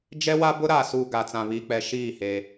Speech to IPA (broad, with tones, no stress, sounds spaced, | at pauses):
d͡ʒ ɛ˦ w a˦ b ʊ˦ ɾ aː˨ s uː˨ ɡ a˨ t͡s ã˨ β iː˨ k͡p ɛ˨ ʃ iː˦˨ h e˦